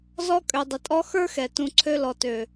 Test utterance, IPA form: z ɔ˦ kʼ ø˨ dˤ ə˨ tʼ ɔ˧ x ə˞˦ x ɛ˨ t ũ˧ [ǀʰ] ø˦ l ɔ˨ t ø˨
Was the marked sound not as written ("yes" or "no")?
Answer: no